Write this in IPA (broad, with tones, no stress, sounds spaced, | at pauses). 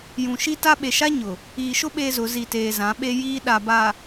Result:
j ũ˨ ʃ i˦ t a˦ ɓ e˨ ʃ a˦ ɲ ʊ˨ | iː˨ ʃ ʊ˦ ɓ eː˦ z ʊ˨˦ z i˨ t eː˨ z ã˨˦ ɓ e˦ j iː˦ ɗ a˨ b a˨